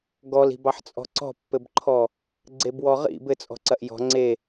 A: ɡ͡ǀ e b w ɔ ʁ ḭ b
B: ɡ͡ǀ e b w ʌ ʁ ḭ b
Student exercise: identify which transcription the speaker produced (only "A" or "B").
A